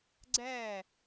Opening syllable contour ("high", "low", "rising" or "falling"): falling